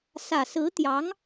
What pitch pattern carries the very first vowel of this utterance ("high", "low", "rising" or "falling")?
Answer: low